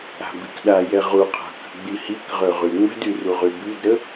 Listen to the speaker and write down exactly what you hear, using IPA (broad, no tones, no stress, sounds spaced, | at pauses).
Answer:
a̤ b i k ɗ a j ɛ ʁ u qʰ a̤ k ə̤ ɡ͡b i h i k ʁ ø ʁ y ŋ͡m ə̤ d y r u ʁ y b y d ɾ ə